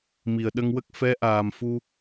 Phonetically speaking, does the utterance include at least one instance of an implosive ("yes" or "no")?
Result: yes